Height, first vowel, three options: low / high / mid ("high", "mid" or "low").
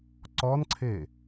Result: mid